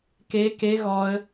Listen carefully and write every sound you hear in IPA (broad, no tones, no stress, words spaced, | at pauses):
ke ke ɣɔə̯